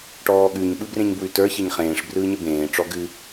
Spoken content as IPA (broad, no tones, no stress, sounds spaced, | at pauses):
ʈ ɔː ɠ ʉ ɲ ɓ ɯ b r ẽ ɲ b w ʉ t ə˞ ç e ɲ χ ẽː ʂ b r ɯː ɲ ə b ẽː ʈ͡ʂ ɔ ɡ ɨ